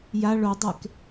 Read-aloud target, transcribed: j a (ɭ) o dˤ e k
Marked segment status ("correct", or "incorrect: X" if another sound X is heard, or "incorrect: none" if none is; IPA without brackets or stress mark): correct